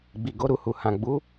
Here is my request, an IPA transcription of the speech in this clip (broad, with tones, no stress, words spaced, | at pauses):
ɡ͡bi˨ɡo˨˦ɾu˧hu˨ hã˨ɡ͡bu˨˦